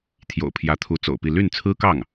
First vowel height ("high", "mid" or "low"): mid